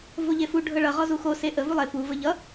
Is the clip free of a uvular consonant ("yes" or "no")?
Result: no